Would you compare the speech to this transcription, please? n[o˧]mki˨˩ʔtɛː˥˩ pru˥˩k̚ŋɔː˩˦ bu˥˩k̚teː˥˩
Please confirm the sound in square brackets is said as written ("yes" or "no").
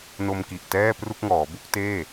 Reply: yes